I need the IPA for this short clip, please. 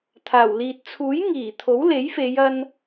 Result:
t̪ʰaː˨˩wliː˨t̚ t͡sʰuː˨˥j ŋiː˨˩t̪ʰo˨˥w le˨˥jfe˨˧jɐ˧n

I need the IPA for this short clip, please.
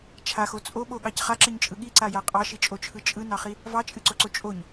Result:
t͡ʃʰaxo t͡sʼoɓoɠɑc χaǁɨɲt͡ʃʼɯ ɠiǀaja qʼɑʃit͡ʃʼot͡ʃʰɯ t͡ʃʼɯnɑχi | vɑt͡ʃʼɨǀoǀo t͡ʃʼoɲ

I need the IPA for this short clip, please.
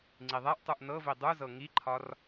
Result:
ŋ͡ǀiðˤɛʔtˤuʔ nɤvi dˤuzɤ ŋiǃʰɒr

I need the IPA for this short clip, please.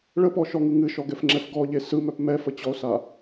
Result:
ɭəpɔʃɔŋɯ ŋɨʃɔɡɛfŋ͡ǁɛf ɡɔʎe sɯmœp mɛfət͡ɕɔo̯sa

